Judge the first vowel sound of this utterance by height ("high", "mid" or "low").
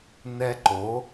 mid